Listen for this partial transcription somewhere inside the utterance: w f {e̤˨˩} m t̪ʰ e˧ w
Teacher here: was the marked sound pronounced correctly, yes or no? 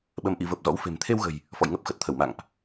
yes